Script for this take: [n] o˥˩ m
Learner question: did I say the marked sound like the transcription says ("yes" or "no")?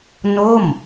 yes